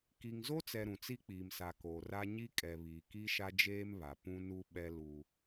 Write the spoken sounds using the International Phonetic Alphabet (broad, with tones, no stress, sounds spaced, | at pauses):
k i˨ ŋ z o˦ t͡s ɛ˨ ɾ ũ˨ t͡s i˦ k͡p iː˨ m s a˨ k oː˨ r a˦ ɲ i˦ kʼ ɛ˨ β iː˨ k i˦ ʃ a˦ d͡ʒ eː˦ m β a˨ p ũ˦ n u˦ ɓ ɛ˦ l u˦